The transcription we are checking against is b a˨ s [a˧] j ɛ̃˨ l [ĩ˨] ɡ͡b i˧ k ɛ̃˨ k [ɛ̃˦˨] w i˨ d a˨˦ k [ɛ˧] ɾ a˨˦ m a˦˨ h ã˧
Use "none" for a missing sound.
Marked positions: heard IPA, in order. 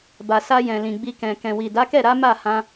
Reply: a˧, ĩ˨, ɛ̃˨, ɛ˦˨

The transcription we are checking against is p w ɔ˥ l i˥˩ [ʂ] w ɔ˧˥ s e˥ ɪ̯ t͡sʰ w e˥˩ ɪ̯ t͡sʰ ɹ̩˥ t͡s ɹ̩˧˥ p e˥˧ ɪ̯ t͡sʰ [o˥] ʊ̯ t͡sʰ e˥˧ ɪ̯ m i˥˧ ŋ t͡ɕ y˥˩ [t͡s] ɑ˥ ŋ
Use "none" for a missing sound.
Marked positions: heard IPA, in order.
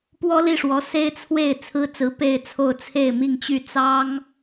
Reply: ʂ, o˥˧, t͡s

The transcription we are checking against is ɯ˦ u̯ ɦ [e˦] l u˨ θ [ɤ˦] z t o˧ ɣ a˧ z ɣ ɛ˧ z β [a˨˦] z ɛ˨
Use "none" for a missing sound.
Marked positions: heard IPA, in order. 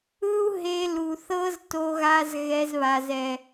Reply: e˧, ɤ˦, a˨

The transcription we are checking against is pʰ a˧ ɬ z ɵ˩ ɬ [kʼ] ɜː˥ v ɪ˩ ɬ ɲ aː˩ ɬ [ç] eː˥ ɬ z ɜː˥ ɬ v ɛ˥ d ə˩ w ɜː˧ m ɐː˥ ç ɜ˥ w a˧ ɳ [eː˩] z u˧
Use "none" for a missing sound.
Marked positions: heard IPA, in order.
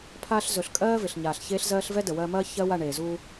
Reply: kʼ, ç, eː˩

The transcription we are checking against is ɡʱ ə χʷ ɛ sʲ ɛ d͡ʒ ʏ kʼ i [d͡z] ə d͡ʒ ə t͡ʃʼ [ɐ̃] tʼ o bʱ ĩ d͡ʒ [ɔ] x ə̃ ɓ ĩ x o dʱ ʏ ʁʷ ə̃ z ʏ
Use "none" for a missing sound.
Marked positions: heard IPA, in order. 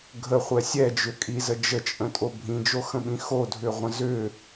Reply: z, ə̃, o

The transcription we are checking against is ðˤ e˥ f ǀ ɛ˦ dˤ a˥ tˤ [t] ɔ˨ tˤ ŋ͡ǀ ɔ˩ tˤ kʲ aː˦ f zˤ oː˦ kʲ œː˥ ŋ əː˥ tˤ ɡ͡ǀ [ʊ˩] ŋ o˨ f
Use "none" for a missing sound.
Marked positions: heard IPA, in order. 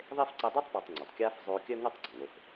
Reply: p, ɔ˩

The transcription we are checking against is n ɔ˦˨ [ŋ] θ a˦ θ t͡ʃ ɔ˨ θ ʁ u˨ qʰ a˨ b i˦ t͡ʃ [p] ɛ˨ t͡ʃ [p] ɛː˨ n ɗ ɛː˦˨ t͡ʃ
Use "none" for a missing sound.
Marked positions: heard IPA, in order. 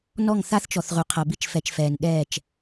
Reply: ŋ, f, f

